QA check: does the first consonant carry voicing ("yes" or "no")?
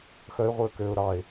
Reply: no